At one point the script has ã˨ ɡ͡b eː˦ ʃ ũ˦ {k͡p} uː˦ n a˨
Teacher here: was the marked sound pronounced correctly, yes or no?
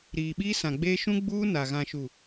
no